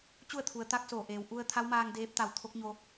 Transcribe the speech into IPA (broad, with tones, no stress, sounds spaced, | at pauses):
t͡ɕ u˥˨ ə̯ t̪ʰ u˩˧ ə̯ t̪ a˧˥ k̚ s oː˧˩ ʔ eː˩ w ʔ u˧ ə̯ t̪ʰ a˧˥ w m aː˧ ŋ d eː˧˥ p̚ t̪ a˧˩ w t̪ʰ o˧˥ k̚ ɲ o˧